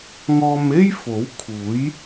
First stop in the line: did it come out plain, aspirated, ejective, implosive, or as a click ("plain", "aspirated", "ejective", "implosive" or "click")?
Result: aspirated